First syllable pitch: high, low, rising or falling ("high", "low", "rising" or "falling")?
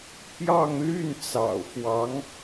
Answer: falling